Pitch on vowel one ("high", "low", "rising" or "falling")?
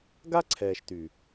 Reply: high